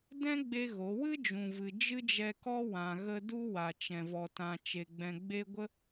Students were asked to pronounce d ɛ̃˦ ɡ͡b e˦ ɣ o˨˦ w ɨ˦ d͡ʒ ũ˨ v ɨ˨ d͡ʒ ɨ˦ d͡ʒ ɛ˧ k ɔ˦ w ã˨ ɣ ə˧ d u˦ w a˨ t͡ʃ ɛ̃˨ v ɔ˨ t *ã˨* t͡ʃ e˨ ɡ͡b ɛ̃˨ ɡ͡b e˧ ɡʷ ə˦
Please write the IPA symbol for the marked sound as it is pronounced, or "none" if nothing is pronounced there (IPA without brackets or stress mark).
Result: ã˨